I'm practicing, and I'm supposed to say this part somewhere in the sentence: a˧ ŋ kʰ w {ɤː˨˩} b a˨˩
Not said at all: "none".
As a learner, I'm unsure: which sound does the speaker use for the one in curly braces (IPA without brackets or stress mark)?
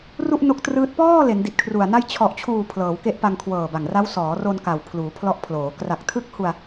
ɤː˨˩